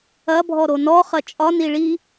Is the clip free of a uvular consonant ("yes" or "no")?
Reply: no